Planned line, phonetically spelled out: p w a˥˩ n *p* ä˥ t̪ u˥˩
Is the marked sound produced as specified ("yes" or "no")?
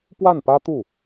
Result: yes